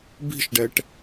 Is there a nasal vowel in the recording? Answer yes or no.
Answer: no